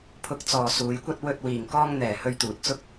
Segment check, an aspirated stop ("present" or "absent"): present